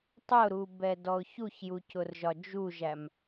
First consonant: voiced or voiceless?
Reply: voiceless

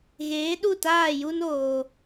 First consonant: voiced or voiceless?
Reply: voiced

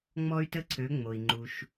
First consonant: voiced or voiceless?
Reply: voiced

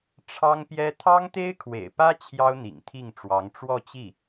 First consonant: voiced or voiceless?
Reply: voiceless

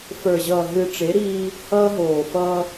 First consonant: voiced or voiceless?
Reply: voiceless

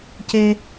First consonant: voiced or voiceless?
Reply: voiceless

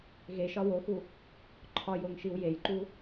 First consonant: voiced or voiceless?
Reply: voiced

